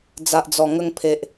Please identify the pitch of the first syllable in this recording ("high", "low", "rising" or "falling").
low